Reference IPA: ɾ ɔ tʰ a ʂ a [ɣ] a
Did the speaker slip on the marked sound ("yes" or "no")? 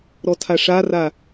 yes